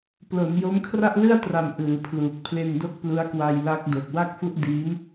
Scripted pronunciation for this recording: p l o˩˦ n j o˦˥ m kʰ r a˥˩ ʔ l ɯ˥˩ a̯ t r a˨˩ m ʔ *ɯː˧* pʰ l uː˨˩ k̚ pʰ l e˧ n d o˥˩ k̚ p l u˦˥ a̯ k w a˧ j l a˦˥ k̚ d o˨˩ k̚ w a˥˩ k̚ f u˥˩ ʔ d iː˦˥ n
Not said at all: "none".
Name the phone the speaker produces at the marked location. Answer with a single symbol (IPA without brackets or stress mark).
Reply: ɯː˩˦